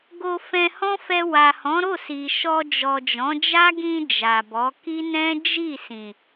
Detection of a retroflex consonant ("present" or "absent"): absent